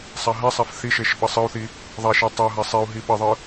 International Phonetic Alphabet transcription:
sˤ a ɦ ɛ sˤ a f θ i ʃ e ʃ ɓ ʌ sˤ ɯ u̯ θ i | ðˤ a ʃ e tˤ o ɦ a sˤ e u̯ ɦ i ɓ ʌ ðˤ ɯ

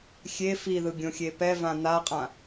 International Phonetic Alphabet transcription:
xʲ e f i ð ɯ ɡʲ õ xʲ e p ɛ v ã n̪ a qʼ ã

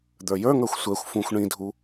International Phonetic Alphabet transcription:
d̪ ə˞ j ə˞ ŋ ə˞ xʷ sʷ ɛ xʷ f ũ xʷ ɳ ĩ dʱ u

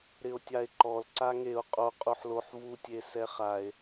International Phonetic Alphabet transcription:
ɾ ɪ o̯ tʲ a e̯ ǃ ɔ l ǀ a ŋ e o̯ qʼ o qʼ u ħ l o ħ v u tʲ e s ɛ χ a e̯

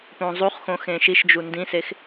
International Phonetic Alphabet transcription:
p õ zˤ u χ x õ x ẽ ʃ i ʃ d͡ʒ u n d ĩ s e x

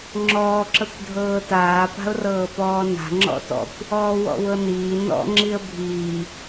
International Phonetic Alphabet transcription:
ŋ͡ǁ ɔː ǁ ɤ kʷ dʱ ɤː t aː p a̤ ʊ̯ r ɤː p ɔː n a̤ ŋ͡ǁ ɔ̰ t ɔ̰ kʷ | ɔː w ɔ̰ w ɤ n iː n ɔ̰ ŋ͡ǁ i ə̯ bʱ iː

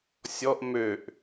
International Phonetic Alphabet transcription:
sʲ ɔ ʔ m ø ʔ

